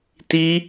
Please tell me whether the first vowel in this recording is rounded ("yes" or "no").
no